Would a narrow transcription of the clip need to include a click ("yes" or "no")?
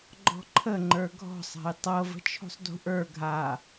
yes